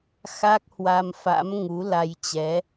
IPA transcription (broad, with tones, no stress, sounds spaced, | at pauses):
x a˦˥ k̚ h w a˧ m f a̰˧˥ m ŋ u˨˦ l a˧ j t͡ɕ ɛ˨˦